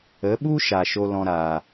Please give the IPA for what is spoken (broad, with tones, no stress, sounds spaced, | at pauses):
ə˨˦ ɓ u˦ ʃ a˨ ʃ o˧ l ɔ̃˧ ɾ aː˨